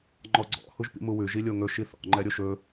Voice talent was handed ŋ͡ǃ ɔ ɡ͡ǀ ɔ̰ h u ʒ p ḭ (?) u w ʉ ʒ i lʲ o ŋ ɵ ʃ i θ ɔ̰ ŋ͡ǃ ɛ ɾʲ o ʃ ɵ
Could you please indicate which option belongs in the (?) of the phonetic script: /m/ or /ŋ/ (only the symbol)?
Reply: m